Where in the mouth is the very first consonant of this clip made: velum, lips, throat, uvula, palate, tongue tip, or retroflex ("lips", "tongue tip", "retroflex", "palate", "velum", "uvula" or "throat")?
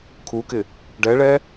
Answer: velum